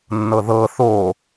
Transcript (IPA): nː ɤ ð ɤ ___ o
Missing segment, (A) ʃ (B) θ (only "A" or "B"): B